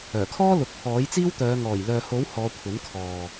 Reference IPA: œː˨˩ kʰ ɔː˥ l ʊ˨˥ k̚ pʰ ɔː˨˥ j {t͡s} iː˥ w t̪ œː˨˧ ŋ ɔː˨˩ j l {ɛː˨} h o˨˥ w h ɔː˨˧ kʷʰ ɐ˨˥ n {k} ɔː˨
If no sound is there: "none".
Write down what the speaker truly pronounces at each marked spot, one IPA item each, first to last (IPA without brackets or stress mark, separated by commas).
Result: t͡s, œː˨, kʰ